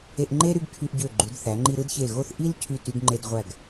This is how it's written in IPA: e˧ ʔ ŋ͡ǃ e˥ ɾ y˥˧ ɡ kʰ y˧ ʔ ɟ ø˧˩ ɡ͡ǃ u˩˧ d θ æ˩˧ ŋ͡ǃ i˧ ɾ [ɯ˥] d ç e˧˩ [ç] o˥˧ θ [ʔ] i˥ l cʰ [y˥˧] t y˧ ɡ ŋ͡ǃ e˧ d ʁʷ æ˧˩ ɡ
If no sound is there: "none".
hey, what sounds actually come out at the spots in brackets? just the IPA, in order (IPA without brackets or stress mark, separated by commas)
ɯ˥, ɣ, ʔ, y˧˩